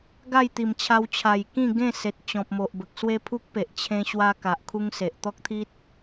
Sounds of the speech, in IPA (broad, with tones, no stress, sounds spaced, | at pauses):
ɡ a˥˧ j t̪ i˨˩ m t͡ɕʰ a˧ w t͡ɕʰ a˨˩ j k ĩ˥˧ ɡ ẽ˥˧ s e˨ t̚ t͡ɕ ɔ̃˨ p̚ m o˨ ʔ b ə˨ k̚ s w e˦ pʰ u˦ k̚ p e˨ ʔ t͡ɕʰ ẽ˧ ɕ w a˦ k a˨ ʔ kʰ u˦ ŋ s e˨ ʔ t̪ ɔ˦ k̚ t̪ʰ i˦ t̚